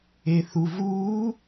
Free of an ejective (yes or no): yes